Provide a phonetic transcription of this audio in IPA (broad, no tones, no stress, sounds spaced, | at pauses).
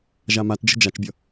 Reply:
ʒ a m a t d͡ʒ ə̤ d͡ʒ a t͡ʃ bʲ ʌ